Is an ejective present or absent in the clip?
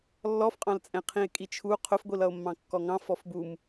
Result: present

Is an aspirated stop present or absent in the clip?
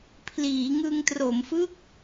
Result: present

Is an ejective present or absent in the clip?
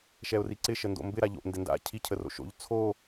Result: absent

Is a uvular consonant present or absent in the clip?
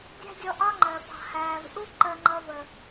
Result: absent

